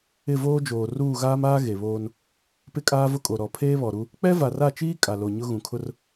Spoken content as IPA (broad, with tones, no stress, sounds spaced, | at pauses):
ɪ˦˨ v oː˦ d͡ʒ oː˨ r uː˦˨ ɣ aː˦ m aː˦ ɣ e˨ β oː˦ n | p ɪ˦ kʼ aː˦ v ʊ˦ kʼ o˨ ɾ ɔ˨ pʰ eː˦ β ɔ˨ ɾ u˦ | k͡p ɛ˦ v a˨ r a˦˨ t͡ʃ iː˦ kʼ a˨ l o˨ ɲ ʊ˦ ɣ ũ˨ kʰ ʊ˦ r